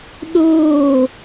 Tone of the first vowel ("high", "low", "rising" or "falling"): falling